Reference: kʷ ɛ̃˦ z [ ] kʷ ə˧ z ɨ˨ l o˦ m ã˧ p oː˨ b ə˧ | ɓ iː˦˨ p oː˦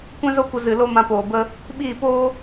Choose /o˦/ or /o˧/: o˦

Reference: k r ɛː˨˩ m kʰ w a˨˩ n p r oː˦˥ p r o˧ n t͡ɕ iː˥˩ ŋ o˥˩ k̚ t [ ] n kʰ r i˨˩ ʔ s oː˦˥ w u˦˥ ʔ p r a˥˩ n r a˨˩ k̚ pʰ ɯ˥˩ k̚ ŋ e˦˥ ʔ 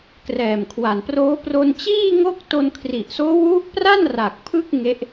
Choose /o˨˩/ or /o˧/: o˧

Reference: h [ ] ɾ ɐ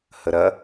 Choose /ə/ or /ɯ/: ə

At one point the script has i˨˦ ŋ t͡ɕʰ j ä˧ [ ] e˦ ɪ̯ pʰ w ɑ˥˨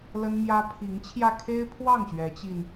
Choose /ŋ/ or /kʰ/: kʰ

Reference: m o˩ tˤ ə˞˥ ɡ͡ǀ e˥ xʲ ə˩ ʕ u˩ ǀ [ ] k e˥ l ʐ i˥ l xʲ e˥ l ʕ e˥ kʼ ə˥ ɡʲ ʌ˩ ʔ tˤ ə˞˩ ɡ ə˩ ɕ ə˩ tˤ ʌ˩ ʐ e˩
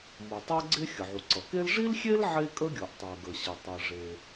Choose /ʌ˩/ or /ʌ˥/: ʌ˩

